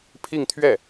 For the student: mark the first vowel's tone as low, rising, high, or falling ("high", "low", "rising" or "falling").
falling